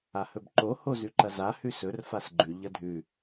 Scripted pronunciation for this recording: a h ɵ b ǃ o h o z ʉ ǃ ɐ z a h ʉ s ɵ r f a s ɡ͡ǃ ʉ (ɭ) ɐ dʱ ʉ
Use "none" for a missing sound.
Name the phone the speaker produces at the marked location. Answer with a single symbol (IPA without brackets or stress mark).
ʎ